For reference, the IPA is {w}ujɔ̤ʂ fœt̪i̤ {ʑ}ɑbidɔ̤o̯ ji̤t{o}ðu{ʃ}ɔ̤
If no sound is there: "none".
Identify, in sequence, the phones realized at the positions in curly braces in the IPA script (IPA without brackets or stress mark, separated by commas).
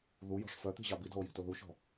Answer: ð, ʑ, o, ʃ